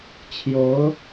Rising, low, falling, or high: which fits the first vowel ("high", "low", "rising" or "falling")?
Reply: rising